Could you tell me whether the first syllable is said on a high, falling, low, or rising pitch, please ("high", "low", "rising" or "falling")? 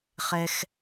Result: high